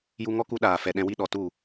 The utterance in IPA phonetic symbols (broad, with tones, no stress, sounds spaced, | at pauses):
j u˦ ŋ ɔ˦ k u˦ ɗ aː˨ f ɛ˨ ɗ ɛ̃˧ w i˦ ɗ ɔ˨ t u˦˨